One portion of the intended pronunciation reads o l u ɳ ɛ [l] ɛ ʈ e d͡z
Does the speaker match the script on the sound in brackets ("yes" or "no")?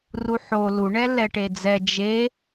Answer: yes